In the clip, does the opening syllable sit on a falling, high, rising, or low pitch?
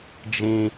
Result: low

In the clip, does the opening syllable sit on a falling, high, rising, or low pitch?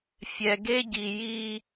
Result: low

